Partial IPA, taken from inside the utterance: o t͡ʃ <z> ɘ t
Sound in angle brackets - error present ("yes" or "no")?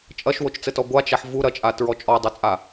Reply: yes